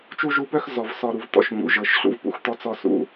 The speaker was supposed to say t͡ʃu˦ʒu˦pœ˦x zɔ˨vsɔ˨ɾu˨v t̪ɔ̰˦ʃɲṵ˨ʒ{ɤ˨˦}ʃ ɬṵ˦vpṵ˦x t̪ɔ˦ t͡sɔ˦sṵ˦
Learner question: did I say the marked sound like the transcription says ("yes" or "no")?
yes